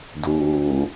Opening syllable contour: low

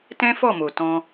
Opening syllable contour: high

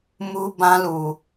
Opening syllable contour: high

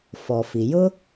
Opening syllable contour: low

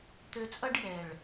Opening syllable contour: low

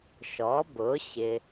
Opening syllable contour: rising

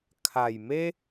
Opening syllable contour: low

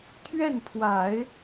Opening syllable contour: falling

